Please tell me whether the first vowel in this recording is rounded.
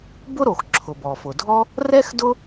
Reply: yes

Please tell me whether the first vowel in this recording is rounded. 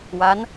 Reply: no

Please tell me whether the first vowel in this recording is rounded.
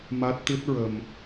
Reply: no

